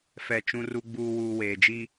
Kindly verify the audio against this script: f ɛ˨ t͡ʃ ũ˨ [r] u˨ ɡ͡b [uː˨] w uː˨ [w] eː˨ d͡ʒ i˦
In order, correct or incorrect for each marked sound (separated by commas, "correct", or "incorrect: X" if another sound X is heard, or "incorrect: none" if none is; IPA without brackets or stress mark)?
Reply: correct, correct, correct